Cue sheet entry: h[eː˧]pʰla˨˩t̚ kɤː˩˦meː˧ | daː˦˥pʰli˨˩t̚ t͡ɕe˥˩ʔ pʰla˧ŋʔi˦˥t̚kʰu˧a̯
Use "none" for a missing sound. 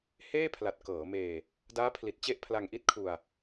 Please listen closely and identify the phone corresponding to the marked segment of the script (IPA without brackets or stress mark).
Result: eː˥˩